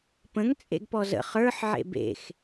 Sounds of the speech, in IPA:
p ə̃ ŋ t͡sʼ ḛ ɡ p ɔ z ə̰ χ ə˞ ħ ʕ ḛ b ḛ x

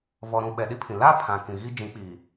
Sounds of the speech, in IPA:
v ɔ˨ ɾ ũ˨ ɓ ɛ˨ ɗ i˦ pʰ ĩ˨ l a˦ pʰ ã˨ k ĩ˨ ɣ i˦ d͡ʒ ĩ˨˦ k͡p iː˨

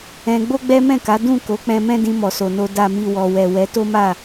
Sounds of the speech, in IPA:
ɛ̃˧ ɡ͡b o˦ ɡ͡b ɛ˦ m ɛ̃˦˨ k a˨˦ d ũ˦˨ k o˨˦ k͡p ɛ̃˧ m ɛ̃˦ d ĩ˧ m ɔ˨ s o˨ n o˧ d a˨ m i˨ w ɔ˨ w ɛ˨ w ɛ˨˦ t o˦ m a˦˨

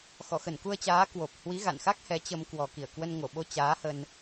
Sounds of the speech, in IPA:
x ɔ˧˩ x ə˧˩ n k u˧ ə̯ t͡ɕ aː˨˦ k w o˨˩ p̚ h w i˨˦ ɣ a̰˧˨ n x a˦˥ k̚ h ɛ˨˦ t͡ɕ ə˧ m k w ɔ˨˩ k i˧˩ ə̯ k w ə˧ n ŋ o˧˩ ɓ o˧ t͡ɕ aː˨˦ h ə˧ n

